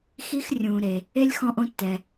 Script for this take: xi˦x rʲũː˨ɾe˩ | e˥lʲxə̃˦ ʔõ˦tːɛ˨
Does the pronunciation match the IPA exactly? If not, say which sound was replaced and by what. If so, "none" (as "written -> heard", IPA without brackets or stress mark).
ə̃˦ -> ɔ̃˦